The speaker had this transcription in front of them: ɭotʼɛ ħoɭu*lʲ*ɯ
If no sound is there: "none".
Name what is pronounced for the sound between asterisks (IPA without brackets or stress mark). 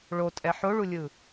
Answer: lʲ